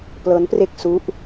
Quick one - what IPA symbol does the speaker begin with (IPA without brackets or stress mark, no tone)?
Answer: p